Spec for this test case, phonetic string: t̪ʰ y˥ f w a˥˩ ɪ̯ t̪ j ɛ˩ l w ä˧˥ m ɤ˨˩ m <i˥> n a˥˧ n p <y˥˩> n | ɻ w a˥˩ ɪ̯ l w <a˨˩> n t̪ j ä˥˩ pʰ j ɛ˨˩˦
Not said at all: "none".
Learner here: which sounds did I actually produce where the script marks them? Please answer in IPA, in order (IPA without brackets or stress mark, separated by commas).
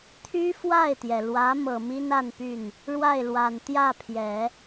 i˥, y˥˩, a˨˩